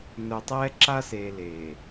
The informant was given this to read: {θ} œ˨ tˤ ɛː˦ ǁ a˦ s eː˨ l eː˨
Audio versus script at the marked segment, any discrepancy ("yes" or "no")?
yes